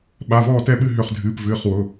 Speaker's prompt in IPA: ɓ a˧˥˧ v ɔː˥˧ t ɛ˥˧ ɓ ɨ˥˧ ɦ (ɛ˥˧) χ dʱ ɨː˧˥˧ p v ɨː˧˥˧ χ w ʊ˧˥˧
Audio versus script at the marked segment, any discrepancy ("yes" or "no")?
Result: yes